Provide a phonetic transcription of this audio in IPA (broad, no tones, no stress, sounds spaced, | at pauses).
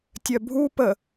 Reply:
tʲ œ bʱ u p ə